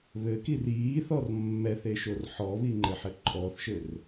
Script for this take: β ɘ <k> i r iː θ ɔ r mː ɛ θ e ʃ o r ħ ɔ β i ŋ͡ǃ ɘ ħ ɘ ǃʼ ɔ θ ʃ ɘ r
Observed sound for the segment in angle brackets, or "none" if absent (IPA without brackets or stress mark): k